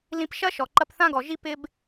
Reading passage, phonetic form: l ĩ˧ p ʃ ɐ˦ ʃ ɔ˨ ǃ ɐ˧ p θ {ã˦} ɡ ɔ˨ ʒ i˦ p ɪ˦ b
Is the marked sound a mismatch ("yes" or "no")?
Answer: no